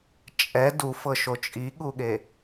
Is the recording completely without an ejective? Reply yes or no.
no